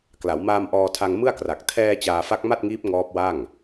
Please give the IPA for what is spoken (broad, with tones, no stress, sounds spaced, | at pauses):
k l a˩˦ w m aː˧ m ʔ ɔː˧ tʰ a˧ ŋ m ɯ˥˩ a̯ k r a˨˩ k̚ tʰ ɛː˧ t͡ɕ aː˧ f a˦˥ k̚ m a˥˩ t̚ ŋ iː˦˥ p̚ ŋ ɔː˦˥ p̚ w a˥˩ ŋ